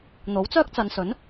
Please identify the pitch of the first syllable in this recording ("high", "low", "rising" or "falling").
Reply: rising